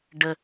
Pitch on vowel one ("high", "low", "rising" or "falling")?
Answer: high